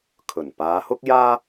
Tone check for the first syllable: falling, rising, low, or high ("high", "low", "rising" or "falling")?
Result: low